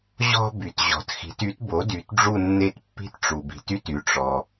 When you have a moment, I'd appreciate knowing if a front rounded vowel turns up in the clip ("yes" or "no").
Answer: yes